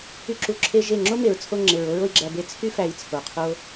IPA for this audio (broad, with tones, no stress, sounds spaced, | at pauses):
y˦ ǁ u˧ ǁʰ e˦ ʒ e˦˨ ŋ͡ǁ o˦ m e˨ ɹ t͡sʰ o˧ ŋ͡ǁ e˨ ɹ o˦ ɹ o˧ i̯ ɡ͡ǁ æ˧ b e˧ t͡sʰ y˦ f æ˧ i̯ t͡sʰ o˨ qʰ o˦